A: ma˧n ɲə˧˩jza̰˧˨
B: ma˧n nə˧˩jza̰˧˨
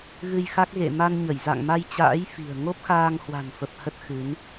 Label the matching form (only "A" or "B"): A